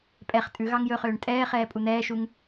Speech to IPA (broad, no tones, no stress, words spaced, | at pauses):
pʼɛχ tʼʉ ɣɑŋjɵχøːɳ tʼɛːχɛː pʼun̪ɛːʃuŋ